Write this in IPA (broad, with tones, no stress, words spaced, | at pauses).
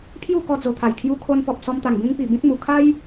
pʰju˥˧kɔ˧d͡zo˨˩t̪ʰa˨˩j kʰju˧kʰo˧npɔ˨p̚ sɔ˧mt̪a˨˩ŋ bĩ˧ŋpi˨˩ bĩ˦t̚mu˨˩ kʰa˦j